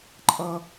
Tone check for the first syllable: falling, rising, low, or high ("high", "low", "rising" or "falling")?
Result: high